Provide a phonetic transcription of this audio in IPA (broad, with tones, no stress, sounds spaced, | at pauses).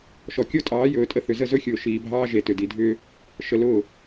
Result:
ʃ ɔ˨ kʲ o˦ tʼ ɑː˨˦ j ɵː˨ tʼ ə˦ θ ʏ˨ z ə˦˨ z ɵ˦ xʲ ʊː˨ ʃ iː˨ bʱ ɑː˦ ʒ e˨ t ʏ˨ d i˨ dʱ ʏː˦ | ʃ ə˨ l ʊː˦˨